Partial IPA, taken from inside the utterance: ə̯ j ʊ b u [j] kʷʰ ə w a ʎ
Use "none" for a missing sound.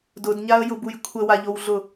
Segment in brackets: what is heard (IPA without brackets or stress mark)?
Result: j